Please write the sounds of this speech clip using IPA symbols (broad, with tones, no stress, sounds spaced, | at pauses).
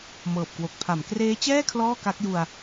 m ɤː˨˩ p̚ k w o˨˩ k̚ pʰ a˩˦ m k r eː˦˥ t͡ɕ ɛː˥˩ kʰ l ɔː˥˩ k a˦˥ k̚ j u˧ a̯